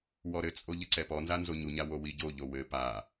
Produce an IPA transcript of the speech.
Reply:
wɔɾɘt͡sʼo ʎɘǀɛpɔnza nzoɲuɲa wowiɟoʎo wɘ pa

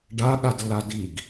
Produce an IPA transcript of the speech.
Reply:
ɖaɠadlːa diɡ

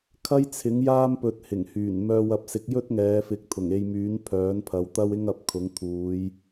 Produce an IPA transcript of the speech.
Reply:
kʰɐ˥jt͡sʰɪ˨˥ŋjaː˥m pɵ˧t̚hɪ˨˩ŋhyː˨˩n mœː˧wɐ˧p̚sɪ˨˥k̚ jɵ˥t̚ŋɛː˨˧fɪ˨˥k̚ t̪ʰʊ˨˩ŋe˧jmyː˨˥n pʰœː˨˥npʰɐ˨˧wt̪ɐ˥w ɪ˥ŋɐ˨˥p̚kʰʊ˨˥ŋ t̪ʰuː˨˧j

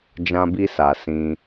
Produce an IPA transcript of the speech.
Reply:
d͡ʒã˧bi˧sa˨ sĩ˧

